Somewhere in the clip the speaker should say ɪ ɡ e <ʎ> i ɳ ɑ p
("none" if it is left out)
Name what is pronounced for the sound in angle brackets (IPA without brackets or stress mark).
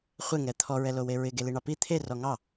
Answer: l